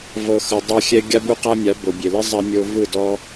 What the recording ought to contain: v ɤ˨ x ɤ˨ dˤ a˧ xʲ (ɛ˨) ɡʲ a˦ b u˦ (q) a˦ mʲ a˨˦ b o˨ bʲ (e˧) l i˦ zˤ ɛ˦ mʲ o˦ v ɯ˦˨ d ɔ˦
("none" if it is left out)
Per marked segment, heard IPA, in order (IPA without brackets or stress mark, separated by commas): ɛ˧, q, e˨